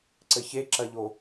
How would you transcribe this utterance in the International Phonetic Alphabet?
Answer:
ǀɘçeǁɐʎo

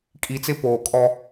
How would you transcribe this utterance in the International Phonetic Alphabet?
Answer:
kʼi˨t͡sɪ˦ poː˨kʼɔ˦

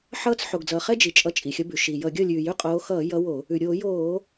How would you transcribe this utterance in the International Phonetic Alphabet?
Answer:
ħʌː˥˩t͡s ħo˩ɡd͡zʌː˩χɛ˦ d͡ʒi˩t͡ʃʼʌ˨˦ t͡ʃʼi˩xʲʌ˨˦bʉ˩ ʃi˩jʌ˧˩˧ɡʲʌ˥˩ lʲʉː˩jʉ˥˩qʼoː˨˦ xʌː˧˩˧ jʌ˨˦ wo˧˩˧ | ʉ˩ɾʲoː˧˩˧joː˧˩˧

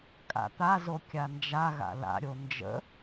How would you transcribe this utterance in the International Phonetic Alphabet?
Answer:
kʼa̰t̪azo kʲand͡ʒa ɣa̰la̰ɾʲo nd͡ʒə̰

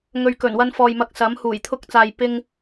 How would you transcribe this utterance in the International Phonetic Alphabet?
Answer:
ŋɵ˨ɥkɵ˨˩nwɐ˧n fɔː˨jmɐ˧k̚sɐ˨˥m huː˨˩jt̪ʰʊ˧k̚t͡saː˨j pɪ˧ŋ

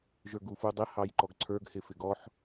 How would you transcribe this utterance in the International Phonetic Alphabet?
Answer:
ʒə˞ɡufudˤɪ hɑjǃɔɡǀʰə˞ɡ hɪfɪɡɔħ

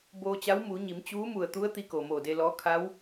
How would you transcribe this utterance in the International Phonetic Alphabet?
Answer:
boː˧t͡ɕa˧˥w muː˩˧ɲi˩˧m t͡ɕuː˧˥mu˧˩ə̯t̪u˧˥ə̯ t̪i˧˥ko˩ moː˧˩de˧lɔː˧˥ kʰa˧˥w

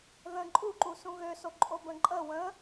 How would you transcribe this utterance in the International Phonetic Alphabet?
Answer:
ðə̃ ǃʼuǃu sũɣøsoǃʼo bə̃ǃʼə wə̃

